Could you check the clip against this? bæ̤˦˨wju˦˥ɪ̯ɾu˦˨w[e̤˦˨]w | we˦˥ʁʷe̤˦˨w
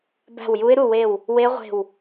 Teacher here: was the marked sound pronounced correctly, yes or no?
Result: no